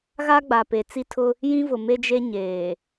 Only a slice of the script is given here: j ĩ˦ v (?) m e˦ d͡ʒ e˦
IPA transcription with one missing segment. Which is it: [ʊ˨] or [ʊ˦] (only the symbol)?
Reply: ʊ˨